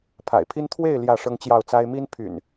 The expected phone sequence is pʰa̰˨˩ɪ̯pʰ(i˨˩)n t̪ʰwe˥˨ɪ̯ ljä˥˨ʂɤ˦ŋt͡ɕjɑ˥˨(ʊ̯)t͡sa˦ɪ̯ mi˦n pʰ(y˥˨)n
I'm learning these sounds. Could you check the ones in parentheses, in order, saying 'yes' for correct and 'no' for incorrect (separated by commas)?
no, yes, no